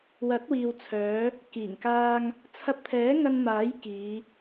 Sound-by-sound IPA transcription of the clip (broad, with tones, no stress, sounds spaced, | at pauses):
w ɐ˨˥ t̚ w iː˨ w t͡sʰ œː˨˧ | k iː˨˩ ŋ k aː˧ ŋ | t͡sʰ ɐ˧ p̚ t̪ʰ ɛː˨˥ ŋ ɐ˧ n m aː˨˥ j k iː˨˧